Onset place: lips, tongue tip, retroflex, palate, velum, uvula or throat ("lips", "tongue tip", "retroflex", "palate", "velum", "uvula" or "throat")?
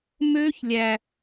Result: lips